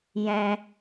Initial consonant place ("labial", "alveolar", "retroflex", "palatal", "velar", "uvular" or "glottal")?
palatal